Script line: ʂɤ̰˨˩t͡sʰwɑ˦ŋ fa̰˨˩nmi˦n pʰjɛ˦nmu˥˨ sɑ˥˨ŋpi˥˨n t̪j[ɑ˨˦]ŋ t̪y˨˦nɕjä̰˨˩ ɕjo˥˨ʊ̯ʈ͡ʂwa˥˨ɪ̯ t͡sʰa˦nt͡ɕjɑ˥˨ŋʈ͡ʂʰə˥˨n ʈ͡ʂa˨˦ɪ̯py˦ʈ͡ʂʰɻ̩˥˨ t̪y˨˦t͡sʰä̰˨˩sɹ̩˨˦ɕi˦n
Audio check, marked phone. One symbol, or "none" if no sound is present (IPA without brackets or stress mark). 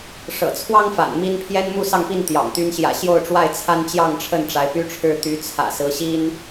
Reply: ɑ̰˨˩